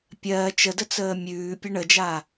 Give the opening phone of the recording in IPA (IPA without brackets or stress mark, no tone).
pʲ